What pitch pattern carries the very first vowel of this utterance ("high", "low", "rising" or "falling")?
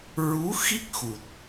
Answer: rising